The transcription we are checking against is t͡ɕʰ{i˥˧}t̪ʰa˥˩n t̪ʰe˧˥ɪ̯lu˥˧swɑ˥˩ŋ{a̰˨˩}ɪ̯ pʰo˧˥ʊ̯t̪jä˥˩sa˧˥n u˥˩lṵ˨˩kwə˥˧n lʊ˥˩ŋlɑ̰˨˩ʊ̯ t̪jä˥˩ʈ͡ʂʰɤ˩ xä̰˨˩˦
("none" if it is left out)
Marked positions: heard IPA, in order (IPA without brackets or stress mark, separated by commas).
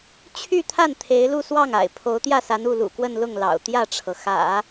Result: y˥˧, a̰˨˩